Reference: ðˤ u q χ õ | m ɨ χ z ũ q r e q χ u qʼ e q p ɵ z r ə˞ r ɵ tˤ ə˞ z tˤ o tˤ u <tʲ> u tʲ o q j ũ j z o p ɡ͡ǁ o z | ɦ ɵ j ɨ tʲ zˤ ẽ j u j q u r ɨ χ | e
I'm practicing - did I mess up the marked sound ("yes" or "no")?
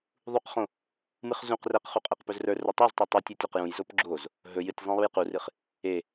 no